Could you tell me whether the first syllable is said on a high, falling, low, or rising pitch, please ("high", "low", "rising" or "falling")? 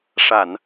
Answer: low